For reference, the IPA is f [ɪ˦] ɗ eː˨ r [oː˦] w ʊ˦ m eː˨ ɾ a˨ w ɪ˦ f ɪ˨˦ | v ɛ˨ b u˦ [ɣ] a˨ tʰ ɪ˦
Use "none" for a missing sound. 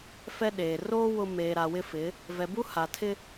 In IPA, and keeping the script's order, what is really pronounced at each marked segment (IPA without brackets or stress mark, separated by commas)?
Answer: ɛ˦, oː˦, h